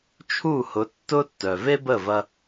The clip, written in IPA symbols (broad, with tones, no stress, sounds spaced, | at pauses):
t͡ʃʰ u˦˨ h ʊ˨˦ tː ʊ˦ tː œ˨ v e˦ b ə˦˨ v ɐ˧